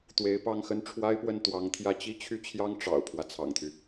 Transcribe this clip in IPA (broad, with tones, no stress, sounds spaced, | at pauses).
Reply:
t̪ w e˧˥ ɪ̯ p ɑ˥˧ ŋ x ə˥˩ n ʈ͡ʂʰ w a˥ ɪ̯ p w ə˥˩ n t̪ w ɑ˧˥ ŋ t̪ʰ j ä˥˩ t͡ɕ i˥ t͡ɕʰ y˥˩ t͡ɕʰ j ɑ˥ ŋ ʈ͡ʂ ɑ̰˨˩ ʊ̯ pʰ w ä˦ t͡sʰ ɑ̰˨˩ ŋ t̪ʰ y˦